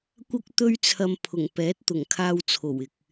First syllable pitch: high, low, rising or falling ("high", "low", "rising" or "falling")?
high